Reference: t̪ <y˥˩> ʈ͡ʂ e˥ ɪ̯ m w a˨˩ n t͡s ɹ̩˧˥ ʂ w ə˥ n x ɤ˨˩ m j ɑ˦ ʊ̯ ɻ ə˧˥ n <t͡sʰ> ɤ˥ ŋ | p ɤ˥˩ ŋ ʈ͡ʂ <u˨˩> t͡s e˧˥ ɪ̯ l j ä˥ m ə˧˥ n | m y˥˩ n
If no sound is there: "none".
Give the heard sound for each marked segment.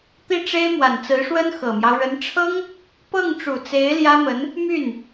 i˥˩, ʈ͡ʂʰ, u˨˩

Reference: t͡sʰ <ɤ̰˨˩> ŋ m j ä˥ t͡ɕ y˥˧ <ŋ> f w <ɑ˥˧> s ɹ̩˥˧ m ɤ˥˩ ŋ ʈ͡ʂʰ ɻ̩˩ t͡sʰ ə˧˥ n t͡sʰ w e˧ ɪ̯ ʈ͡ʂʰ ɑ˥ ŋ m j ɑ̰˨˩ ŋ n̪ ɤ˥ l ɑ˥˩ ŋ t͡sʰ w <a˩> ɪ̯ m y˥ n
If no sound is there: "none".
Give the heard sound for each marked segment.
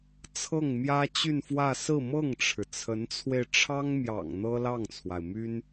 ɤ˥˩, n, ä˥˧, a˩

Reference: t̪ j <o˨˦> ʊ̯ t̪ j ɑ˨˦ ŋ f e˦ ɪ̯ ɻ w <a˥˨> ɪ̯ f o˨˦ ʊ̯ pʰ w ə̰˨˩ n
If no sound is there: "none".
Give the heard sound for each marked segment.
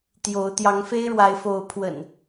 o˨˦, a˨˦

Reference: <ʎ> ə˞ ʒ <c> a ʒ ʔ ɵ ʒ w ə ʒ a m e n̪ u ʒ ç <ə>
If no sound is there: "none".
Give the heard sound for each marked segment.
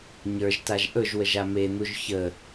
ɲ, t, ə

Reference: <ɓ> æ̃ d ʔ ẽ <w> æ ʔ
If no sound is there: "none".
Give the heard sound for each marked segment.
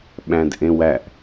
ɓ, w

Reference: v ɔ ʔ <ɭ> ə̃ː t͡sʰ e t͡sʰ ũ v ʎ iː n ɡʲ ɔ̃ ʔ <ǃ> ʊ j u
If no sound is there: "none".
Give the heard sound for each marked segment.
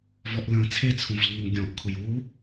l, kʰ

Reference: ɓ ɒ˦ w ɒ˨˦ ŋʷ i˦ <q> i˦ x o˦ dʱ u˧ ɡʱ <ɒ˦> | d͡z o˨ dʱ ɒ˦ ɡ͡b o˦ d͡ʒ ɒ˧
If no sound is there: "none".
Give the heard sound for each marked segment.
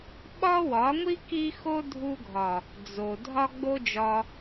k, ɒ˨

